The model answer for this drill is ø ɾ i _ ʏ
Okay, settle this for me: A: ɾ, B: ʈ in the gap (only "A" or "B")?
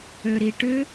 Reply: B